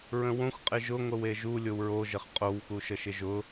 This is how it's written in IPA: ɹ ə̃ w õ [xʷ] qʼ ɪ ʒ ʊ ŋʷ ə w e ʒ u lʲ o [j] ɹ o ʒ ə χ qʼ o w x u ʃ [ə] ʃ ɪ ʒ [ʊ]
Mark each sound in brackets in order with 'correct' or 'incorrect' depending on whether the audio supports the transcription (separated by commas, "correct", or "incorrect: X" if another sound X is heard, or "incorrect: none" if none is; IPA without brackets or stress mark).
correct, incorrect: w, correct, correct